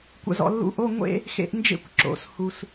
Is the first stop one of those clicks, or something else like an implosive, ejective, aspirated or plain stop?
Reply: plain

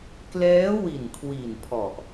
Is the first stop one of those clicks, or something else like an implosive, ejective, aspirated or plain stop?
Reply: plain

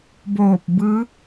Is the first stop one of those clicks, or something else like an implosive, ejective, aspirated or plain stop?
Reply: plain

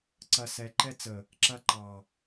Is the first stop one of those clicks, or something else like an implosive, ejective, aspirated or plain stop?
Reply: click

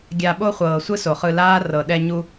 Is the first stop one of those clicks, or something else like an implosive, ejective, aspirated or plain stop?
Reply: plain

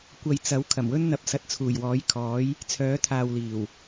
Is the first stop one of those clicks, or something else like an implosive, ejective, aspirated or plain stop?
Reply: plain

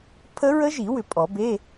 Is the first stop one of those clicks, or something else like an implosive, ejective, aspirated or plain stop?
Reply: aspirated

